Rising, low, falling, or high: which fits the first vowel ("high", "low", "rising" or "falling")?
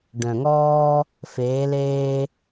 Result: low